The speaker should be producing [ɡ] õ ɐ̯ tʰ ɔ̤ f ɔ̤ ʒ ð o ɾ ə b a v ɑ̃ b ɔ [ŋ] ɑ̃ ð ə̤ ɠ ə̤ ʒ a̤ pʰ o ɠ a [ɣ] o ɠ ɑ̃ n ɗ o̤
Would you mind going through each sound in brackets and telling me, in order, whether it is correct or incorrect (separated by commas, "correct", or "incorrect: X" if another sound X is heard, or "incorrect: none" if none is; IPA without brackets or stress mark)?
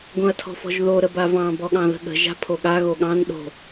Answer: correct, incorrect: ɠ, correct